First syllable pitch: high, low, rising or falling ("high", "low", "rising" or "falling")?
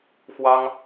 high